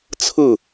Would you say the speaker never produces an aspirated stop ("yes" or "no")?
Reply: no